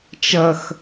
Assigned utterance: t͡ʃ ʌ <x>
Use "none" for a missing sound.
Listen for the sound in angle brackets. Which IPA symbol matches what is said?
x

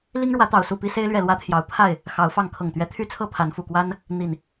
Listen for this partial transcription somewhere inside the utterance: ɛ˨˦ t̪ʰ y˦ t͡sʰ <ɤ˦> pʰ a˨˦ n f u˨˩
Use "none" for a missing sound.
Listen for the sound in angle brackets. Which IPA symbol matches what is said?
ɤ˥˨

